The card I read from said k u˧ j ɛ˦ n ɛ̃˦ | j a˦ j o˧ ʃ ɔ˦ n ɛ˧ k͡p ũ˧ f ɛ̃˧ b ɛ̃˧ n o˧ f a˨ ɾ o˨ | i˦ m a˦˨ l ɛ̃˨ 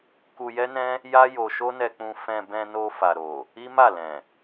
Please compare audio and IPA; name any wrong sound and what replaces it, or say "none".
ɔ˦ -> o˦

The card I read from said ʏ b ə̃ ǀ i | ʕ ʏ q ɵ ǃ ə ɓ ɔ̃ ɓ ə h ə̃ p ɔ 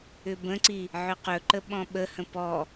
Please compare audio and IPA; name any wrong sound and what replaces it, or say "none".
none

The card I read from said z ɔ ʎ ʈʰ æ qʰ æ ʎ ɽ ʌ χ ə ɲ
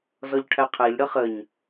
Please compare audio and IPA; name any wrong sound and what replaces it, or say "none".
none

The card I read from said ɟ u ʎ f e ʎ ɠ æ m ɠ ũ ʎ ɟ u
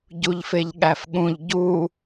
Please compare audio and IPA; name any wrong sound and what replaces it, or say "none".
m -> f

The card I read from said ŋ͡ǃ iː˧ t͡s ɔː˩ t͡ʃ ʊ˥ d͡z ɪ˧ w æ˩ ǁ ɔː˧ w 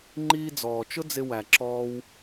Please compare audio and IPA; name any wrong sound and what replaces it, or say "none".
t͡s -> d͡z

